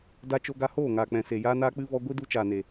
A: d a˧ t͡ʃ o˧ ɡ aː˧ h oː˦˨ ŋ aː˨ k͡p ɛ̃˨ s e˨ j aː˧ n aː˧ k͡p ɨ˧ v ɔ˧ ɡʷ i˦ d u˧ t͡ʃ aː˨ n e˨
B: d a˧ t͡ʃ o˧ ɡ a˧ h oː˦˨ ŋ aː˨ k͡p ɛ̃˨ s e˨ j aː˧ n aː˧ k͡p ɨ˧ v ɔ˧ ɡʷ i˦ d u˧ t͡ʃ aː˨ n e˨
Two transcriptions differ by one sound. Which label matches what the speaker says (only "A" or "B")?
B